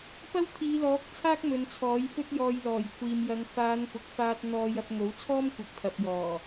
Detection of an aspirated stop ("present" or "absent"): present